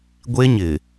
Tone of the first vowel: high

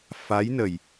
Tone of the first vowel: rising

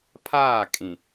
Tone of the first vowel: falling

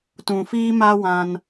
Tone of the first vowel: low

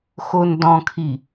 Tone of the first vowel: low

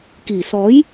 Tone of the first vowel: low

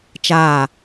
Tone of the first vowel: falling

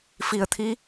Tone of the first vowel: low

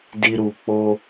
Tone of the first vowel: low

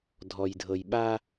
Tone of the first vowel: low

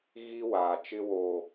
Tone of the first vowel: high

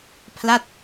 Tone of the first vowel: falling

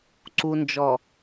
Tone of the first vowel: low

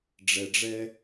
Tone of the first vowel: low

